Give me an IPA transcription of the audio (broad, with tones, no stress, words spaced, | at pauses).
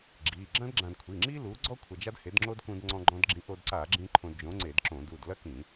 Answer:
ɡ͡ǁi˩˧˩ ɡ͡ǁɐ̃˥dɡ͡ǁã˧d kʷʰi˩˧˩ŋ͡ǁi˥lu˨˥ɡ͡ǀɔ˥ kʷʰɐ˧d͡ʒa˥dhe˨˥dŋ͡ǁo˥d kũ˧dŋ͡ǀɔ̃˧ɡ͡ǃɔ̃˧dɡ͡ǁĩ˨˥ ʔo˧dǀa˧˩˧ɡ͡ǁĩ˧ ǃʰõ˧dd͡ʒõ˨˥ŋ͡ǀe˧˩˧dǁõ˧˩˧ du˩˧˩dlɐ˥kĩ˧˩˧